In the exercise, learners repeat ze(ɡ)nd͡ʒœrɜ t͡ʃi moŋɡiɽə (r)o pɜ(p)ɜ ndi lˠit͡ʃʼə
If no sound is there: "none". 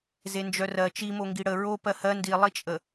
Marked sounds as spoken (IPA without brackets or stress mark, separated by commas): none, ɹ, h